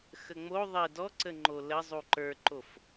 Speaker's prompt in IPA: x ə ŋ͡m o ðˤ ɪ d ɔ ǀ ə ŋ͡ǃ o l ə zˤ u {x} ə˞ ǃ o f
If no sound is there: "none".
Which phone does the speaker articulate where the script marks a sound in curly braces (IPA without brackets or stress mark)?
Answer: ǃ